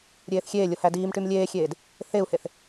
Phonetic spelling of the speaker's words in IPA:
ɾʲ eː θ xʲ eː lʲ o h æ d iː m ʈ y m lʲ eː xʲ eː d | θ e u̯ h e θ

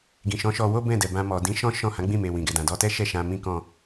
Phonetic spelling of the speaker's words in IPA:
ɡ ĩ˨ ʃ ɔ̃˨˦ ʃ ɔ˧ w o˦ b ɛ̃˦˨ d ɛ˨ b ã˧ m ɔ˨ d ĩ˨˦ ʃ ɔ̃˦ ʃ ɔ̃˦˨ h ã˨˦ ɡ͡b ĩ˦˨ m e˨ w ĩ˨ ɡ ɛ˨ d ã˨ d ɔ˧ t ɛ˦ ʃ ɛ˦˨ ʃ ã˧ m ĩ˦ k ɔ̃˦˨

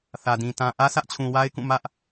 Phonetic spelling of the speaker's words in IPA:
θ ä˨ d ĩ˨ t ã˨ ʔ ä˦ sʰ ä˦ ʔ t͡ɕʰ ũ˨ w a˦ ɪ̯ k ũ˦˨ m ä˦ ʔ

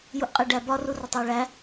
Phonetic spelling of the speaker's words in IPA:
j u ʔ qʼ e ɖ æ b ɒ r u r ɒ tˤ w e ɭ æ

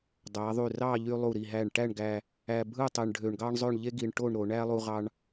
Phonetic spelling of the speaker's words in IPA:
dˤ æ˩˧ ðˤ y˧˩ r ɑ˥˧ ʎ y˧ lˠ u˧˩ ɾ i˧˩ ɦ æ˧˩ ɳ ʈ æ˥˧ ɳ ɡ æ˧ | æ˧ bʱ ɯ˥˧ tˤ e˧ ɳ ɖʱ ø˧ ɳ ɡ ɑ˥ ɳ zˤ ø˥˧ ɳ ʎ e˥ ɡ i˧ ɳ ʈ o˥˧ ɳ ɾ o˩˧ ɳ æ˥ lˠ u˧ ʁ ɑ˧ ɳ

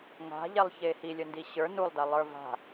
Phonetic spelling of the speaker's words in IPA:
ŋ a̤ ʎ ɛ lˠ ç e h i lʲ ə n d i ɕ ə˞ n u lˠ d a lˠ ə˞ v a̤

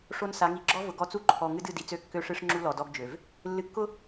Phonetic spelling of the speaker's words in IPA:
ʂ o˦ n s a˨˦ ŋ i˨ ɡ͡ǁ ɔ˦ v ʊ˨ ɡ ɔ˦ t͡s u˦ ǃʰ ɔ˨ ŋ ɨ˦ d ɨ˦˨ d i˨ t͡s ø˦˨ kː ø˦ ʂ ɨ˦ ʂ ŋ͡ǁ u˦ l ɔ˨ d ɔ˦ ɡ d͡ʒ ø˨ v | lː ɨ˨ kː ʊ˦

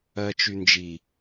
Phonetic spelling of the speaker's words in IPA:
ɜ t͡ʃ y n d͡ʒ i

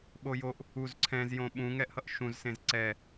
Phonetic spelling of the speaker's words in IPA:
ɓ o j o ʔ | u z ǀʰ ɛ̃ z j õ ɓ ũ ŋ ɛ ʔ h ʌ ʔ ʃ ũ z s ẽ z ǀ ɛ

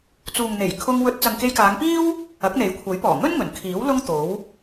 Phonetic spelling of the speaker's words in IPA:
t͡s uː˨ ŋ n̪ e˨˩ j kʰ ʊ˧ ŋ w ɵ˧ t̚ t͡s ɐ˨ ŋ k e˧ j k aː˨˧ ŋ p iː˥ w | ɐ˨˥ k̚ n̪ e˨˥ j kʷʰ ɐ˨˥ j p ɔː˨˩ ŋ ɵ˥ n ŋ ɵ˨˩ n kʰ iː˨˥ w l ʊ˥ ŋ t̪ o˨˥ w

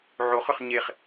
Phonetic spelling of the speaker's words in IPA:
ʕ o χ ʏ χ ɲ e χ

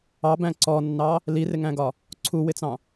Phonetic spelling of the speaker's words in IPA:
ɑ b æ̃ ǀ ɔ nː ɑ | l i r ɪ ŋ æ̃ ɡ ɒ | ǀʰ u w ɪ t͡s ɑ̃

